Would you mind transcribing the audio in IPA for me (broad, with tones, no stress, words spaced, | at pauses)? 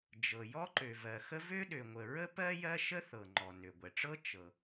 d͡ʒɤ˩ jɔ˥ǃø˩vɜ˩xə˥ vø˥ɗø˩ŋʷə˩ ɹə˥pɜ˥ jɜ˥ʃə˥θɤ˩ ŋ͡ǃɔ˩nø˩ɡʷɛ˩ʈ͡ʂɤ˥ t͡ʃɤ˩